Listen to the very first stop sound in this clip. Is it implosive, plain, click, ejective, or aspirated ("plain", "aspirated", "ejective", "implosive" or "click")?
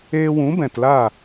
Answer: plain